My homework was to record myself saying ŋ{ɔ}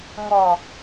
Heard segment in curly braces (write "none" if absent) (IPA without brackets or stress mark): ɔ